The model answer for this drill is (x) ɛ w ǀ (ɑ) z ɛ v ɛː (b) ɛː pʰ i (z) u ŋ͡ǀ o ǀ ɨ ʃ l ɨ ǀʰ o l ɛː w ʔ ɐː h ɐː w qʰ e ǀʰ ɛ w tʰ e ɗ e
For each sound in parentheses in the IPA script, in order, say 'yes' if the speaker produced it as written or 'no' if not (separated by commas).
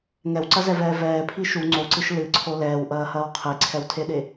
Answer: no, no, no, no